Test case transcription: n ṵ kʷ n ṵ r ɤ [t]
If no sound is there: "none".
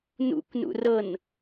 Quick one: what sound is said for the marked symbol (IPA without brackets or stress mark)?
n